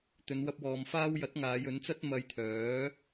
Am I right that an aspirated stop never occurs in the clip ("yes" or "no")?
no